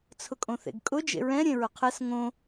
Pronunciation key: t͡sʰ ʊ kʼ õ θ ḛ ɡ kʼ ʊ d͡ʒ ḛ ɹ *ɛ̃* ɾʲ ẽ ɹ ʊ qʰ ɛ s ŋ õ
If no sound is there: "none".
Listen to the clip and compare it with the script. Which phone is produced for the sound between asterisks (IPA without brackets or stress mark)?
ɛ̃